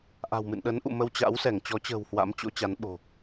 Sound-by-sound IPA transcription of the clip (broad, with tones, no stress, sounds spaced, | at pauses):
ʔ a̤˨˩ w m ɨ̰˧˨ n ɗ ə˨˦ n ʔ ṵ˧˨ m ə˧ w t͡ɕ a̰˧˥ w s ɛ˧˩ ŋ t͡ɕ ɔ˨˦ t͡ɕ ə̤ː˨˩ w h w a̰˧˥ m t͡ɕ o̰˧˥ t͡ɕ a˨˦ n ɓ o̤˨˩